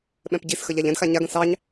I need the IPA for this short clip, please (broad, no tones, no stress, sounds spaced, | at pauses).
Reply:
ɓ ɛ̃ p ɟ i s x ə ʎ a ʎ ɛ̃ d x a ɲ a ɡ ə̃ s ɑ ɲ